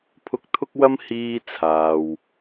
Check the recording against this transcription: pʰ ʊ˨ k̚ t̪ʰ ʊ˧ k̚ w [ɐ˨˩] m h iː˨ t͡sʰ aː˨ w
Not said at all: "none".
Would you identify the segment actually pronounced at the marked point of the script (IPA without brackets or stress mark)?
ɐ˧